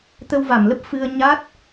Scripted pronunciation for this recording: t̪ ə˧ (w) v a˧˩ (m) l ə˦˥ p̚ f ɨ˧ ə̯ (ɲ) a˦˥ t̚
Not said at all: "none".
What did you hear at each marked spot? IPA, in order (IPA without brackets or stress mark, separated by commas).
w, m, ɲ